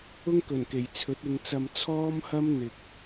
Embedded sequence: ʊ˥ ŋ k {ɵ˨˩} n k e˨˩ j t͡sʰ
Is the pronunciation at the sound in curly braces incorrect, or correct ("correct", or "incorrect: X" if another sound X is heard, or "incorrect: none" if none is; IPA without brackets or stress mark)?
correct